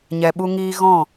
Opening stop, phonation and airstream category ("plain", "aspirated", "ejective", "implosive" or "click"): implosive